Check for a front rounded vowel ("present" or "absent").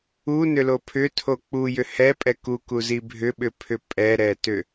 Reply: present